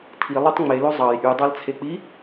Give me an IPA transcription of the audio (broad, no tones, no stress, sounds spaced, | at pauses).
tʰ i lˠ u tˤ ŋ͡m e l o zˤ ɑ j ʔ y dˤ ɑ l t͡sʰ e k͡p i